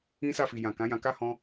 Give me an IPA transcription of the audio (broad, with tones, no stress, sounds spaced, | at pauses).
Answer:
ĩ˦ s a˦˨ f i˨ j ã˨ k ã˨˦ j ã˧ k a˦ h ɔ̃˦